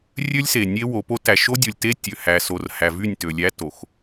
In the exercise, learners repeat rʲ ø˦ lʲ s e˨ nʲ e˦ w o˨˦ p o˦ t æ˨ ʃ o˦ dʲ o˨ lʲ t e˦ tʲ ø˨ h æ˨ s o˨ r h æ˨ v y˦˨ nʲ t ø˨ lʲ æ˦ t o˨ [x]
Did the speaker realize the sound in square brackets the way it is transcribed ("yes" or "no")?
yes